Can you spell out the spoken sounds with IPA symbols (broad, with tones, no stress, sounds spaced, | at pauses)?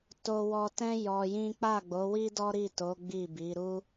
t o˧ w ɔ˧ t ɛ̃˦ j ɔ˧ j ĩ˦ k͡p a˦˨ ɡ͡b o˨˦ w i˦ d ɔ˦ ɾ i˦˨ t o˨˦ ɡ͡b i˦˨ b i˨˦ ɾ u˦